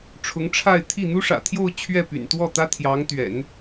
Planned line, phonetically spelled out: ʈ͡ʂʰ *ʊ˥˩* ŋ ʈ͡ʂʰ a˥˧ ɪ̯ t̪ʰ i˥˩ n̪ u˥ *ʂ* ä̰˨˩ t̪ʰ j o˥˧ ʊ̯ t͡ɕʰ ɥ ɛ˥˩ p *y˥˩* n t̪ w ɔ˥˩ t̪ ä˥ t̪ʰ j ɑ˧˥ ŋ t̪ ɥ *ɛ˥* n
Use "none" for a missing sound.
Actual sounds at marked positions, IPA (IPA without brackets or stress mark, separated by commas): ʊ˧˥, ʂ, y̰˨˩, ɛ̰˨˩˦